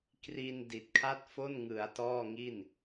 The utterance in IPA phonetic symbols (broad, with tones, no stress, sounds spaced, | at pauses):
k r i˧ n d i˨˩ t̚ kʰ a˥˩ t̚ f o˥˩ n ŋ ɯ˩˦ a̯ t ɔː˥˩ ŋ i˥˩ n